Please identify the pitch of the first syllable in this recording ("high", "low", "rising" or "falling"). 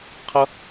high